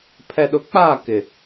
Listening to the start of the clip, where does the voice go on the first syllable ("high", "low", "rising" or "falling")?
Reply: low